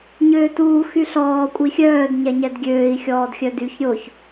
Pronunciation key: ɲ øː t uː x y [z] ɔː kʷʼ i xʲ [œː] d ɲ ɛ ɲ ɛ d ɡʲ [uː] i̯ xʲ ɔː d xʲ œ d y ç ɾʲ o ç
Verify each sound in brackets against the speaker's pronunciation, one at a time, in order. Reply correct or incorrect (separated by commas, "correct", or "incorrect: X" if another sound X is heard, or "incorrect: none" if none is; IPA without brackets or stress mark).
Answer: incorrect: ɬ, correct, incorrect: øː